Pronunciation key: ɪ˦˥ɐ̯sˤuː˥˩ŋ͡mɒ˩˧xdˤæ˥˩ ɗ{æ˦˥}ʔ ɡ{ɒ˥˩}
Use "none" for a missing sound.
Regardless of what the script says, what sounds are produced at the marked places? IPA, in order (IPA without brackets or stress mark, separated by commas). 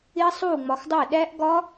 æ˦˥, ɒ˦˥